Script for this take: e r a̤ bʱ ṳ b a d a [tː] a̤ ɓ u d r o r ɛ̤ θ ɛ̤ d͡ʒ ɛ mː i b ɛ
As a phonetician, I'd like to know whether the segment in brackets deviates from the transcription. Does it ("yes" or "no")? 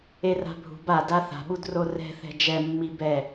yes